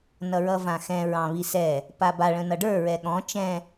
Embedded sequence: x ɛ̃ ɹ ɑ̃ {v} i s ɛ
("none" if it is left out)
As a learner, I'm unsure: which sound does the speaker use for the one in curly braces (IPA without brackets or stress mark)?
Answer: β